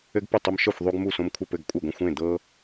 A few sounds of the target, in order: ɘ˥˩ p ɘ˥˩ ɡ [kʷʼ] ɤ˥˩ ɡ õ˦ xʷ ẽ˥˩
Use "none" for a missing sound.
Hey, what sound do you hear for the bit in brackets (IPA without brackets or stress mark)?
kʷʼ